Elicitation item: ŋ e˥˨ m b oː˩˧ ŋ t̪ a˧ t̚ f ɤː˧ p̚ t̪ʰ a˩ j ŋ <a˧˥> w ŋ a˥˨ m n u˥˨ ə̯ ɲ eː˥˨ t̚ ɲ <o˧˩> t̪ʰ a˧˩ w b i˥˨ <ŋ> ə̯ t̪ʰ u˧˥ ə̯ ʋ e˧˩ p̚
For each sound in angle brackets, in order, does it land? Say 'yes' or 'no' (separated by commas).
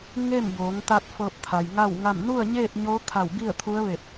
no, no, no